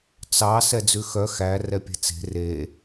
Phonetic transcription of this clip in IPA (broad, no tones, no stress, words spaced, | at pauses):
t͡sɑ sɛd͡zʉxœ xæ rɛpʲɛ̤t͡se̤ re